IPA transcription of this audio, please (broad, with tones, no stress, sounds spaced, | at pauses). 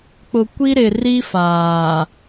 k͡p ʊ˨ kʷ i˦ ɾ ɪ˨ r i˦ f aː˨